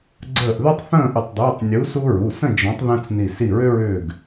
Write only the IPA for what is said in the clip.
ɡ͡ǀ əː˧˩ ʔ ð ɛ˦ tˤ θ ə̃ː˥˨ ʔ ə˧˩ tˤ dˤ uː˩˧˩ tˤ nʲ u˨˥ s u˦ ɹ u˩˧˩ s ə̃˥˨ d͡ʒ ɛ̃˨˥ tˤ ð ə̃ː˦ t͡s n i˧˩ s i˧˩ ɹ ʏ˦ ɹ ʏː˧˩ ɡ

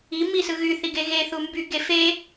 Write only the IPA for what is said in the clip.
i m i s ɯ ɣ y θ i ɡ e ɣ e θ u m b y ɡ e f e

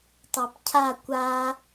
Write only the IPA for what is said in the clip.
tˤ ɤ p cʰ a kʷ a

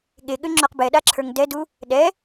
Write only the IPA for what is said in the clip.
ɠ e ɠ ʏ ŋ͡ǁ o q b ɛ ɗ a ǁʰ ə˞ ŋ d ɛ d u | ɗ ɛ

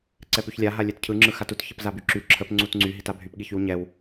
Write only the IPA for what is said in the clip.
ǀ ɛ p y ç lʲ a ɦ a lʲ ɛ t cʰ ɯ ŋ͡ǁ ɯ x a t u t ç ə p z a b y ǁ y ǁʰ ə p ŋ͡ǀ u t ŋ͡ǀ y ɦ i t a bʱ y p ɠ i ç y w ɲ ɛ w

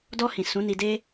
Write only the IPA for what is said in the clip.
d ɔ˧ h ĩ˨ s ũ˨˦ n i˧ d e˦

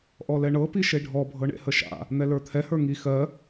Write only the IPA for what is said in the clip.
ʔ ɔ l ɛ ɳ ɤ p i ʃ e ɖʱ ɔ bʱ ɤ ɳ ḛ h ə ʃ a̰ | n̪ ɛ l ə˞ t̪ʰ ɛ h ə˞ ŋ i x ɜ

